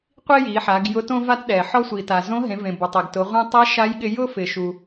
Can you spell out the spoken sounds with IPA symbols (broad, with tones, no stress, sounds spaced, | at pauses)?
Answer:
qʷ i˥ j i˩˧ ħ a˩˧ ɡ j ʊ˧˥ t õ˥ v a˥ t ɗ ɛ˩ ħ ɔ˧ sʷ i˩ t a˩ z õ˧˥ ɦ ẽ˩˧ v ẽ˩ b ʊ˩ tˤ e˩ ɡ t ʊ˩˧ ʁʷ ẽ˧ tˤ ɛ˧˥ ʃ a˧˥ j ɠ ɪ˧ j ʊ˥ f ɪ˩ ʃ u˩